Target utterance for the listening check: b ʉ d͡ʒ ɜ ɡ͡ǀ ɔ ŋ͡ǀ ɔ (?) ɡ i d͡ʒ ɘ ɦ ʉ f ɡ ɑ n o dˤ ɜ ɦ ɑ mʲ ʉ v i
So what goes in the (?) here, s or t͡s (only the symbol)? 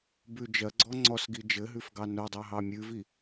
s